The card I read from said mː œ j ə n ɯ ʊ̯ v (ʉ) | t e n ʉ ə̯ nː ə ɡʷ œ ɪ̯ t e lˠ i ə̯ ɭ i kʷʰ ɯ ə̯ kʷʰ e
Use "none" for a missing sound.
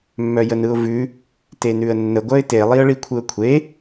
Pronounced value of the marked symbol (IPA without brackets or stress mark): ʉ